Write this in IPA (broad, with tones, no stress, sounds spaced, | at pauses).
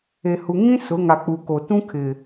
e˨ h u˨ ŋ ĩ˦ s ʊ˨˦ ŋ a˨ k͡p u˨ k o˨ t ũ˦ kʰ ɪ˨